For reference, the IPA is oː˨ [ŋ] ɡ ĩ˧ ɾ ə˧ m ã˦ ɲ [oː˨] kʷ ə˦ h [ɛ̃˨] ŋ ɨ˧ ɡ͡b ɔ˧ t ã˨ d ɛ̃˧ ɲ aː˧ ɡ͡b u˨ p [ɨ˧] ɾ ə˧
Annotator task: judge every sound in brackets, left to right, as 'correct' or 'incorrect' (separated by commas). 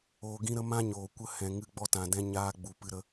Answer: incorrect, correct, correct, correct